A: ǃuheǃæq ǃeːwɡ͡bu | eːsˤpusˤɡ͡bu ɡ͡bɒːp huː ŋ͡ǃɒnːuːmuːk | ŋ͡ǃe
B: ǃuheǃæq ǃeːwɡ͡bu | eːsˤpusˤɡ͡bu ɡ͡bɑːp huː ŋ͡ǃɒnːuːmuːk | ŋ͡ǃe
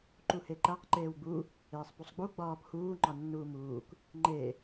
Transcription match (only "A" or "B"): A